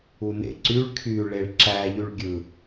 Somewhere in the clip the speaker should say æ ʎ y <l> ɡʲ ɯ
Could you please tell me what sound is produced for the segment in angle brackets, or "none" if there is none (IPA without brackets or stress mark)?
ɭ